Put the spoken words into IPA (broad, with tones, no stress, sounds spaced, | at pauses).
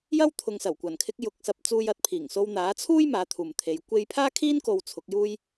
j ɐ˥ w t̪ʰ ʊ˨˧ ŋ s ɐ˨˩ w kʷ ɐ˨˩ n kʰ ɪ˧ k̚ j ʊ˨ k̚ s ɐ˧ p̚ t͡s uː˧ j ɐ˨˥ t̚ pʰ iː˨˩ ŋ s o˧ w n̪ aː˨˥ t͡sʰ uː˥ j m aː˨˥ t̪ʰ uː˨ m t̪ʰ e˨˧ j kʷ e˧ j pʰ aː˥ kʰ iː˥ n k o˧ w t͡sʰ ʊ˨˥ k̚ j uː˥ j